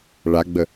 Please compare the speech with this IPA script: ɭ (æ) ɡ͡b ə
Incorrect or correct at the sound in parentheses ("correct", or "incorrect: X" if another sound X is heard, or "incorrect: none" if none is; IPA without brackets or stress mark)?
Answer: incorrect: a